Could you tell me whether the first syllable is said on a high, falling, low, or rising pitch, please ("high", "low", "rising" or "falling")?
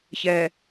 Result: low